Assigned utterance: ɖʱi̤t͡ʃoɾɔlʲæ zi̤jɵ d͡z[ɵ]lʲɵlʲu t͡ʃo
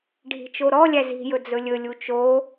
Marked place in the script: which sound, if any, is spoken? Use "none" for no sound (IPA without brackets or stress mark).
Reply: ɵ